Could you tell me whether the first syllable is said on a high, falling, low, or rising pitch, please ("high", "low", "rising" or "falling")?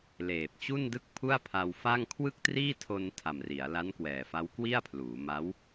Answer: low